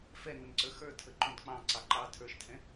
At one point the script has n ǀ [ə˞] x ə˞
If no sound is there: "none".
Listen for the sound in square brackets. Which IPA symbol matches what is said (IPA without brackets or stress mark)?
ə˞